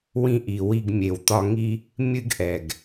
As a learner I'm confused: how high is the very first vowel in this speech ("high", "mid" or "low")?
high